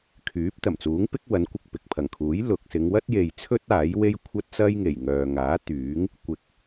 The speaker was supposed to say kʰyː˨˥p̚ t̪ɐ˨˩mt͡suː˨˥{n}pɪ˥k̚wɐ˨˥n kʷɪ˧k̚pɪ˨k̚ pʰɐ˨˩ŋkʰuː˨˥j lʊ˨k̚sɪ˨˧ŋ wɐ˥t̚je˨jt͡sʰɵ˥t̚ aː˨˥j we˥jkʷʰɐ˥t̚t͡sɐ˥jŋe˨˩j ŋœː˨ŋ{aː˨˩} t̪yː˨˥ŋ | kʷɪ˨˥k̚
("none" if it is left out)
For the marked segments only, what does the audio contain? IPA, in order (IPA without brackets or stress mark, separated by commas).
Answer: ŋ, aː˨˥